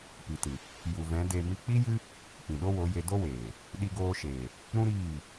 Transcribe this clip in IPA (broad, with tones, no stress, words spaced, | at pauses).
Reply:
pi˨tɨ˨ | ju˨vɛ̃˨˦ de˧ mi˧k͡pi˦jɨ˦ | pĩ˨ɗo˦wo˨˦je˧ do˦weː˨ | ɗi˧ɡoː˧ʃeː˨ | ɾũ˦ɾiː˦˨